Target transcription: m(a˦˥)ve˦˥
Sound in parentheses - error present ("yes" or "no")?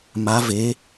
no